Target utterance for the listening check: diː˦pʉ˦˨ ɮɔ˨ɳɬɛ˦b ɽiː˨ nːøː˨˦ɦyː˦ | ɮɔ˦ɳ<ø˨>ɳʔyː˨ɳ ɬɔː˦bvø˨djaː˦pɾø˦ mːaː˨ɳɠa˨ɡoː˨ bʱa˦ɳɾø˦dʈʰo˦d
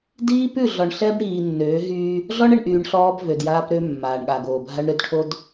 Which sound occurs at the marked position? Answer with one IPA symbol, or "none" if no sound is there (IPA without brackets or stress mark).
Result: ɛ˨